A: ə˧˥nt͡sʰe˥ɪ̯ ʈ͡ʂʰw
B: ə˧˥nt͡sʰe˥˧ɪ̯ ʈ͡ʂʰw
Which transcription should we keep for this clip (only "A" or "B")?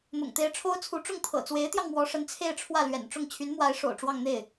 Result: B